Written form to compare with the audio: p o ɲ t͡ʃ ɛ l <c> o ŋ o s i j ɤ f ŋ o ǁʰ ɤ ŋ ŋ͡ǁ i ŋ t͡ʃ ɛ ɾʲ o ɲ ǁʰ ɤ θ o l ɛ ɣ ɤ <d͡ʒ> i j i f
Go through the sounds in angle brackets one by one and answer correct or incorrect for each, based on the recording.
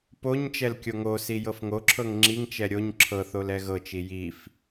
incorrect: kʲ, incorrect: t͡ʃ

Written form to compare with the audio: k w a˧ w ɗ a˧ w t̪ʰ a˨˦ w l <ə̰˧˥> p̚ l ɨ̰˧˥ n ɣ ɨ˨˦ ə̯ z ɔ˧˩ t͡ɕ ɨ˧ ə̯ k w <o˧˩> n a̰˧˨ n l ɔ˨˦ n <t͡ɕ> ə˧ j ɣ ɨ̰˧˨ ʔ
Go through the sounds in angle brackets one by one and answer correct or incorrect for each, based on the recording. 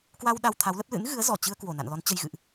incorrect: ə˦˥, correct, correct

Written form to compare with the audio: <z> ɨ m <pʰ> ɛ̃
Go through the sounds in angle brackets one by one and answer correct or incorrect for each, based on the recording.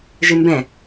incorrect: ʒ, incorrect: b

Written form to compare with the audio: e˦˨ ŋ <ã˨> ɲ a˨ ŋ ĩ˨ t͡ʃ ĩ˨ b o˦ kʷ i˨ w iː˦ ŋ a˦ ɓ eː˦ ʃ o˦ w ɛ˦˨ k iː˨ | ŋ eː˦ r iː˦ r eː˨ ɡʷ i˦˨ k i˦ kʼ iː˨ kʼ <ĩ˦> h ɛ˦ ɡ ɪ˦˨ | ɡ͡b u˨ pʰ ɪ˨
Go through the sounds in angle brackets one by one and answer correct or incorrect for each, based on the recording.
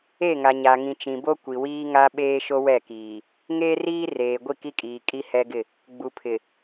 incorrect: a˨, incorrect: i˦

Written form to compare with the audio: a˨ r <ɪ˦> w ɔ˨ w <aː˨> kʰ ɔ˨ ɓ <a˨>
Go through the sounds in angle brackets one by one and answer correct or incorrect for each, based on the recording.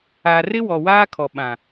correct, incorrect: aː˦, incorrect: ã˨

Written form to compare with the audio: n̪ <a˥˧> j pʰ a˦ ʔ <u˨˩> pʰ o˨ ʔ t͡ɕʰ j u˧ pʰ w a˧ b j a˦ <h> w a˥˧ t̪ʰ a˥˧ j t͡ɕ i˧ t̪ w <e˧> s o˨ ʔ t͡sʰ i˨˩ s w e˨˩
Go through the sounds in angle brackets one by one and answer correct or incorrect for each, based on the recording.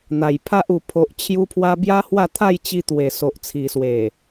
incorrect: a˨˩, correct, correct, incorrect: e˨˩

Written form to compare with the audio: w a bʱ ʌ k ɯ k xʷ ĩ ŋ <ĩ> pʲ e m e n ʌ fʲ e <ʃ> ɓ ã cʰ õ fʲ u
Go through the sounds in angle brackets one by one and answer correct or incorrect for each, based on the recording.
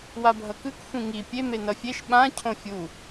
incorrect: i, correct

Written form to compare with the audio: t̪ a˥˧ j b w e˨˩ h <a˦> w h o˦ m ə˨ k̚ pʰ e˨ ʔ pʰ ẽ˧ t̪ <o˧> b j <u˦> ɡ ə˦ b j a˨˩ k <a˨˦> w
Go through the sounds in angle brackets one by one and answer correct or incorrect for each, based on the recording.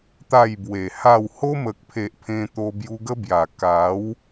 incorrect: a˥˧, correct, incorrect: u˧, correct

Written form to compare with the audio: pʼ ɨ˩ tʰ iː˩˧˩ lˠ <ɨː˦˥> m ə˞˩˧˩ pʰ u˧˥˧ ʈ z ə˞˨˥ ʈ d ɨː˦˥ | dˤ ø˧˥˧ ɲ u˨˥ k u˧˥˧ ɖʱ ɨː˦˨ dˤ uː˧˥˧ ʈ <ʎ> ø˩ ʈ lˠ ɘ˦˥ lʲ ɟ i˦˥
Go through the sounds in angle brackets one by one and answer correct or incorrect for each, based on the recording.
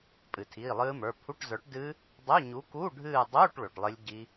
correct, incorrect: ɭ

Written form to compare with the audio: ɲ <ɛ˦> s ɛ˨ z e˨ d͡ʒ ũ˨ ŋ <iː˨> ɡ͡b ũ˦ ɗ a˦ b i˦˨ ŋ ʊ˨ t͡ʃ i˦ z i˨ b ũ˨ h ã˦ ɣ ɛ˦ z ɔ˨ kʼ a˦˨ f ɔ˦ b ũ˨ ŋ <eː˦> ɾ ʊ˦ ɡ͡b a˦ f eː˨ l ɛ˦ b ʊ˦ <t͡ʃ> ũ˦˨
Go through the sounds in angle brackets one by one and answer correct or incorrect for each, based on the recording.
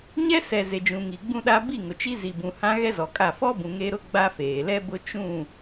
correct, incorrect: i˨, incorrect: e˦, correct

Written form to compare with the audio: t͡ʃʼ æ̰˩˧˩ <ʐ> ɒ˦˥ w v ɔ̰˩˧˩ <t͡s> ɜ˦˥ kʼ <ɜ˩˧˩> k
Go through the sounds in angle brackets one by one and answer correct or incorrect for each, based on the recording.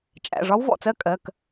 correct, correct, correct

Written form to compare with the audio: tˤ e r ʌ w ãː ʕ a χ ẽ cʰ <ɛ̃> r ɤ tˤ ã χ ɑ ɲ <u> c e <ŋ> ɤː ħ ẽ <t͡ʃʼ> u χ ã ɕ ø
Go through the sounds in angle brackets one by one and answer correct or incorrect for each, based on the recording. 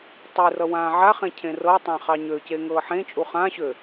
incorrect: ẽ, incorrect: ø, correct, correct

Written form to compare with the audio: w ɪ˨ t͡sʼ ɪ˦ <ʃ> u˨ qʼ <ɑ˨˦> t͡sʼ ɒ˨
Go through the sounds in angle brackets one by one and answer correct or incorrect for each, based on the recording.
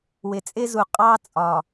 incorrect: z, incorrect: ɑ˦

